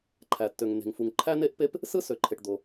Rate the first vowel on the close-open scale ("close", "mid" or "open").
open